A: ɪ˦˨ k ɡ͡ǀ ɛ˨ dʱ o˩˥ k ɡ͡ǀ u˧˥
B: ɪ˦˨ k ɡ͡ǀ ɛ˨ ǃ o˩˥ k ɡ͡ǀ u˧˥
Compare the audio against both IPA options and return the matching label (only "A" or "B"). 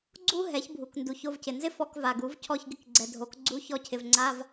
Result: A